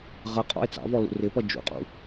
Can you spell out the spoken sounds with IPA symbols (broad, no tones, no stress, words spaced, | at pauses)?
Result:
ʁʌqʼɔ̰e̯ t͡sɑ̰vɔ lṵrɪpʌ d͡ʒṵqʼṵ